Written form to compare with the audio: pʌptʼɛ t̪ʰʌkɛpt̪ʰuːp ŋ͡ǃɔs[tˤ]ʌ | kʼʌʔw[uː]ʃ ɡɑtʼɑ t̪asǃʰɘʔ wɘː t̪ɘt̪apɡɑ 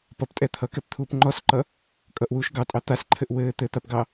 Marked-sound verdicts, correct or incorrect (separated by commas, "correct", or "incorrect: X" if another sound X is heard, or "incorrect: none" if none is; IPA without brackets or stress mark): incorrect: ǃ, correct